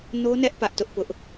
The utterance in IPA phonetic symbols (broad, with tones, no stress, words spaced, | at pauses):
no˦nɛ˦ʔ pä˦ʔtʊ˦ʔpʊ˦ʔ